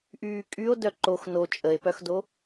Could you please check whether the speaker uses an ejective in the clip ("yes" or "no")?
yes